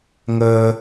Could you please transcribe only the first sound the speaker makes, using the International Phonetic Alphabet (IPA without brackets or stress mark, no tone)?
ŋ